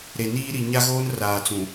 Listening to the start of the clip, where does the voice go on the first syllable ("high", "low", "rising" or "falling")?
low